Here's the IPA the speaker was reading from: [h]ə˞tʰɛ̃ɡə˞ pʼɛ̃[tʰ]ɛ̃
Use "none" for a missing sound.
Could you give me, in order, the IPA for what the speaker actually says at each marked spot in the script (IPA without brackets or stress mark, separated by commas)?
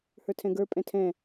h, tʰ